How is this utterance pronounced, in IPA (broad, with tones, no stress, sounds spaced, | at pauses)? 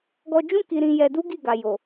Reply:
ɡ ɔ˧ d͡ʒ ũ˦ k i˧ ɾ ĩ˧ j ɛ˧ d u˦ ɡ i˦˨ ɡ a˨ j o˨